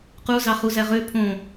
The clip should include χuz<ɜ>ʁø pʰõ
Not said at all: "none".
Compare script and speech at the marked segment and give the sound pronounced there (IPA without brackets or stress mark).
æ